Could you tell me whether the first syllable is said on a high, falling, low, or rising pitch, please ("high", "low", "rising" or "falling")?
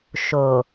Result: low